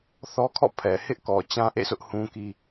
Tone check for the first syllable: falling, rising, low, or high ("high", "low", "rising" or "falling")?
high